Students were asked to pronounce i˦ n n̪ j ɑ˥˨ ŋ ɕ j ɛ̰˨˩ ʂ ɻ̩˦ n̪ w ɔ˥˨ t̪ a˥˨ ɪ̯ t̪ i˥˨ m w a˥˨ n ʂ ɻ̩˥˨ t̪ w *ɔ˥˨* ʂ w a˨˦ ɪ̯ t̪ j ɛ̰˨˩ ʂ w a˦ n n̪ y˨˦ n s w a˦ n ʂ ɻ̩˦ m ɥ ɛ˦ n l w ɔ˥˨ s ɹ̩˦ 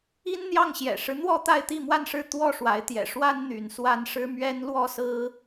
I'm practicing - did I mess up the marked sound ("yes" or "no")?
no